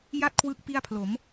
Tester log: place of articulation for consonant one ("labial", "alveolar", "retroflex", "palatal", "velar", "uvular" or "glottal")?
palatal